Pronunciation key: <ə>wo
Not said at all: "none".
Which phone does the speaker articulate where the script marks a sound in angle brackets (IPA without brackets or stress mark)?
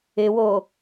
ɪ